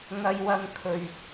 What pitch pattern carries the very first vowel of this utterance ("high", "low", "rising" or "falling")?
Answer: high